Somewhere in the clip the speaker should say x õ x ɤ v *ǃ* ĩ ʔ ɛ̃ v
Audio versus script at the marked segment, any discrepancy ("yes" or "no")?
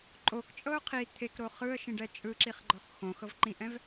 no